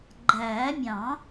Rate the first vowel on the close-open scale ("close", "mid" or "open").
open